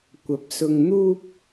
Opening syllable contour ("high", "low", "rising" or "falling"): rising